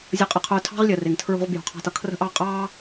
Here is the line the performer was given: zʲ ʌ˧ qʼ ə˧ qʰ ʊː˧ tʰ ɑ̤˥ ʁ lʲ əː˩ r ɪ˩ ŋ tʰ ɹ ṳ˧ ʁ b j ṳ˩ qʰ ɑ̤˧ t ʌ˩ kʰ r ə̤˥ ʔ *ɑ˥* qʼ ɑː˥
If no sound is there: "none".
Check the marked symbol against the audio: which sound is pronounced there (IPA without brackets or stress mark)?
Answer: ɑ˥